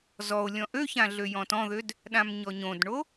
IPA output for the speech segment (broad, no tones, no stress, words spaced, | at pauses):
zɔo̯ lʲɔ̃ʔøçã ɮøjɔ̃tɔ̃ðød | ɗãmɲɔɲõdɳo